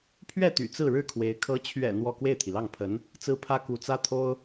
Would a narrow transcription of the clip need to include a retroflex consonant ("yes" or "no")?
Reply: yes